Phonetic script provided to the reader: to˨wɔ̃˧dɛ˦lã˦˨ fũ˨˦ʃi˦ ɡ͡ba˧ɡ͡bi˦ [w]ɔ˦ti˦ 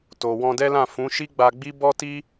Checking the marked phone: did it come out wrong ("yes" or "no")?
yes